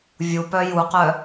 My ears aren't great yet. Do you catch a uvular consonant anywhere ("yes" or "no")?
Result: yes